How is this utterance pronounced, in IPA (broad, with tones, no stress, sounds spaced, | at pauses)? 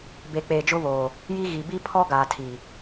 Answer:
b e˨ k͡p eː˨ d͡ʒ ʊ˦ β oː˨ | j i˦ ɣ i˨ b i˦ pʰ ɔ˦ ɡ aː˨ tʰ i˨